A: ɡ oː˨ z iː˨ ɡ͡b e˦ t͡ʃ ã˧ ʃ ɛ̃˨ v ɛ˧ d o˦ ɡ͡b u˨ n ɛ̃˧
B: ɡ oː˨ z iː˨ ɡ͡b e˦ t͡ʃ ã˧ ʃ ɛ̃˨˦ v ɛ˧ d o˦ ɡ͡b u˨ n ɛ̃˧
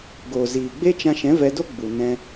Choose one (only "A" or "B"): B